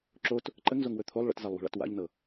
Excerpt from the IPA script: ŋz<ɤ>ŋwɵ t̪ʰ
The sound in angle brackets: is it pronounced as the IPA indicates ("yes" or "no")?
no